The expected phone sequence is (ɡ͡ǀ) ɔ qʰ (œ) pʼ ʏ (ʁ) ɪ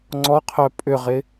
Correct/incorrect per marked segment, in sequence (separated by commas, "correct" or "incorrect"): incorrect, correct, correct